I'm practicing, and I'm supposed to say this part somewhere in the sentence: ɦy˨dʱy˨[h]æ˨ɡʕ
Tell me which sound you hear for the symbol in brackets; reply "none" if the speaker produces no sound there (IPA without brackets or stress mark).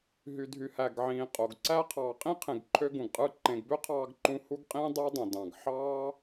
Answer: h